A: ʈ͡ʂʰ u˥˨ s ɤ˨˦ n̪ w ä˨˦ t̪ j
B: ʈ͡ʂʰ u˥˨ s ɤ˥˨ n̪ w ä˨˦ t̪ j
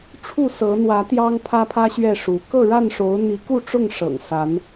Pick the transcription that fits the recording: A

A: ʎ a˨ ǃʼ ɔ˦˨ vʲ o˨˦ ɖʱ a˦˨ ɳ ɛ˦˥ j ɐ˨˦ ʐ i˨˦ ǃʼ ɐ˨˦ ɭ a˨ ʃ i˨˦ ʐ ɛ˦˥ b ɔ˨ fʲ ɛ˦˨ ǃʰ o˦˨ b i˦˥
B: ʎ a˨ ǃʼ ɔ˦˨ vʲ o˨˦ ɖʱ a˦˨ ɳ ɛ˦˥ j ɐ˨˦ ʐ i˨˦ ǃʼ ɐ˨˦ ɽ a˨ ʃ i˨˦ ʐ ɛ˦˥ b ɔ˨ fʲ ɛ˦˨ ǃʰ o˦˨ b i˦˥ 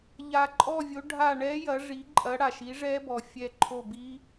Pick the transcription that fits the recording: B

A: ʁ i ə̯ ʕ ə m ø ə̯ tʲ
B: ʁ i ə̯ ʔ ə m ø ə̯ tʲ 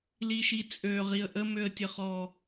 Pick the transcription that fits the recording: B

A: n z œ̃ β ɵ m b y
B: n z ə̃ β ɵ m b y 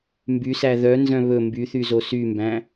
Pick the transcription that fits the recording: A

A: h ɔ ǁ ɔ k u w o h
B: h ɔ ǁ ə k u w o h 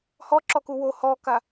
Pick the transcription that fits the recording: A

